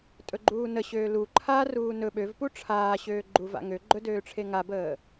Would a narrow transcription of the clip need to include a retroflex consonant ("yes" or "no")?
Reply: yes